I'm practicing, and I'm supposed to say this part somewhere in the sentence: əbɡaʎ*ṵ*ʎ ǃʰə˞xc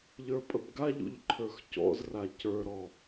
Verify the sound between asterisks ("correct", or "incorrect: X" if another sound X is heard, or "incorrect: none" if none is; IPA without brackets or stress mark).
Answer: correct